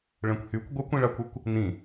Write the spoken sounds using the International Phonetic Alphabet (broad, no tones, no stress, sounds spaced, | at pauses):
ɭ ɛ̃ kʷ h y kʷ ɡʷ ə kʷ ĩ ɭ a kʷ ɛ kʷ | n ĩ